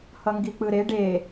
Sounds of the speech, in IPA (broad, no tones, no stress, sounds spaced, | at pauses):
h ʌ ŋ ɡ i k͡p ɯ ɾ e ɖ e